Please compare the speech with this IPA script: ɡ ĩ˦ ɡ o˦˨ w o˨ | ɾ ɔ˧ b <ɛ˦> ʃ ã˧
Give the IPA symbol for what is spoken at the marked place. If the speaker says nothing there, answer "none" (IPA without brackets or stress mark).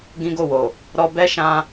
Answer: ɛ˦